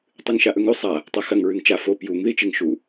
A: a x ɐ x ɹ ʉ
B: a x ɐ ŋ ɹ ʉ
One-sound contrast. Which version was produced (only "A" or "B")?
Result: B